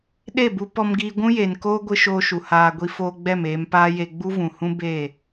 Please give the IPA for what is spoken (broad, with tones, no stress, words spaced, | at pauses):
ɗe˦˨bu˧pɔ˧mɡiː˧ ɡʷũ˦je˨n koː˦ɡʷɨ˧ ʃoː˧ʃu˨ haː˨ ɡʷi˧foː˧ ɡ͡bɛ˦˨meː˧m paː˦je˧ ɡ͡bu˦vũ˨hũ˦ be˦˨